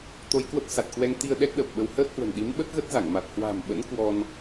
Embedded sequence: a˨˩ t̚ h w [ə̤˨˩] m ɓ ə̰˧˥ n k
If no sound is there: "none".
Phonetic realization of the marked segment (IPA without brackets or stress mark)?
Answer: a̤˨˩